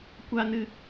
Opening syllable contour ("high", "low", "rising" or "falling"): high